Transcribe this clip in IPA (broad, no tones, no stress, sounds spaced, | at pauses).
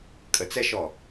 kʼ ə t͡s ɛ ʃ ɔ